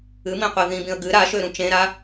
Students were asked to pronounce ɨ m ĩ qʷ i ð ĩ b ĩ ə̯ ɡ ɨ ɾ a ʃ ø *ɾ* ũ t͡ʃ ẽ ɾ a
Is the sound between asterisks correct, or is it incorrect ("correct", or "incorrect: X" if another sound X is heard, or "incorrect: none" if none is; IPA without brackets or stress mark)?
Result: correct